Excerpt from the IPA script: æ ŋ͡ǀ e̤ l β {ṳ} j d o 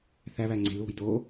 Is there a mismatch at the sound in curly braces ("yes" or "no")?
yes